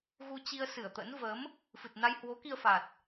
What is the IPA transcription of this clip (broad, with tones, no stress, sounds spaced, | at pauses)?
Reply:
ɣ u˧ t͡ɕ i˧ ə̯ s ɨ˧˩ ə̯ t̪ ə̰˧˥ n v ə˨˦ m | f ɨ˨˩ t̚ n a˧ j h w o˨˦ k i˧ ə̯ f a˨˩ t̚